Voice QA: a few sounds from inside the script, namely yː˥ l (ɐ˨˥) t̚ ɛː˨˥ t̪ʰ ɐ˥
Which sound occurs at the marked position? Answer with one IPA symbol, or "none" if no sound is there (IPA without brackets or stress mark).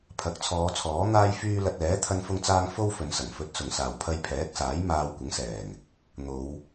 ɐ˧